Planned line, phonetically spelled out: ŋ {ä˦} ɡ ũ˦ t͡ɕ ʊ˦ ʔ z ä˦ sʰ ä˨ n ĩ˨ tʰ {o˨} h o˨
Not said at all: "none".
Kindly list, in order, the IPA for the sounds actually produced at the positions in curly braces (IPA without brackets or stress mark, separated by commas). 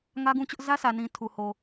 ä˦, u˨